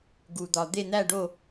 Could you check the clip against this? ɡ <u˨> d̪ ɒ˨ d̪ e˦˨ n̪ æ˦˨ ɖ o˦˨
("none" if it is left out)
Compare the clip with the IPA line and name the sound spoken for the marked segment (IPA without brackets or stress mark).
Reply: u˨